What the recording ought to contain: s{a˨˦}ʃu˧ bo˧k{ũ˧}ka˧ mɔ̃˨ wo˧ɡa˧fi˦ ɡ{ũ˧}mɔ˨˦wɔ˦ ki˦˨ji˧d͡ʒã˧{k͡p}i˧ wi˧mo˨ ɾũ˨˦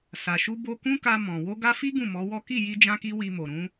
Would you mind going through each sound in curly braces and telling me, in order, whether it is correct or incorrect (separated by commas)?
incorrect, incorrect, incorrect, incorrect